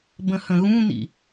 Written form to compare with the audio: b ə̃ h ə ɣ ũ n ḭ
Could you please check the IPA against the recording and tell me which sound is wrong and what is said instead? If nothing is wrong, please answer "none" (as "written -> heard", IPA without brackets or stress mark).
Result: ə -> ə̃